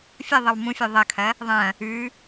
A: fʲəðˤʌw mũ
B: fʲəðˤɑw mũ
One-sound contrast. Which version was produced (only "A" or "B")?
A